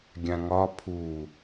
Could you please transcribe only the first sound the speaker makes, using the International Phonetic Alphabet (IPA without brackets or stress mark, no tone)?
ɡʲ